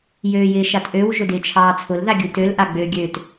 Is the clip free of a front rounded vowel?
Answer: no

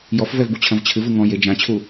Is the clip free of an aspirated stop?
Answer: no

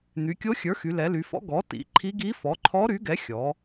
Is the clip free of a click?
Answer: no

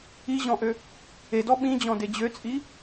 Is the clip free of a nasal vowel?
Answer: no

